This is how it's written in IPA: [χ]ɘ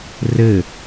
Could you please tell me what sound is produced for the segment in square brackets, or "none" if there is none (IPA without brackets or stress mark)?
r